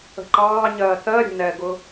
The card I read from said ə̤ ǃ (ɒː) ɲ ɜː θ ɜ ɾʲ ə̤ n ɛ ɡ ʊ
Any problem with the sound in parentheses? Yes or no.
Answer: yes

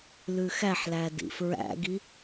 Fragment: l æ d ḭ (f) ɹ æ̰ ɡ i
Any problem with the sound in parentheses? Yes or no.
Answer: no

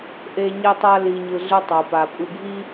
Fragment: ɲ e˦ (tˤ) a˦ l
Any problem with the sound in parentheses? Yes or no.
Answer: no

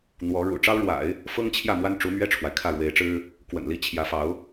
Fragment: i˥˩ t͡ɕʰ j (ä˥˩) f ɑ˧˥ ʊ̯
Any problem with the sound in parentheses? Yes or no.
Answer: yes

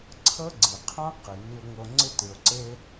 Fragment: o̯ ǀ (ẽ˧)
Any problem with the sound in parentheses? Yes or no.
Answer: yes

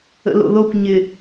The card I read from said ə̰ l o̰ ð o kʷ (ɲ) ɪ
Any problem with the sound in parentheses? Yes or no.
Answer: no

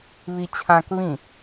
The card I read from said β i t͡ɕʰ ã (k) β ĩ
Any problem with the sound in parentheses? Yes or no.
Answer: no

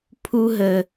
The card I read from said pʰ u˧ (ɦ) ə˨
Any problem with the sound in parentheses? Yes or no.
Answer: no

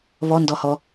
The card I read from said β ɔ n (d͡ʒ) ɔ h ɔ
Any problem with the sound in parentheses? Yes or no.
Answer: yes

